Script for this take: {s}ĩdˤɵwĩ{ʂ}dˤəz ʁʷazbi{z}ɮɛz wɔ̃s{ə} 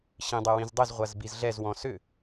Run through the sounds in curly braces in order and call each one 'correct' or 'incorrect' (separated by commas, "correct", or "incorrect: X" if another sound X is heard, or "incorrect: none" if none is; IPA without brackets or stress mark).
incorrect: ɕ, incorrect: z, correct, incorrect: ʏ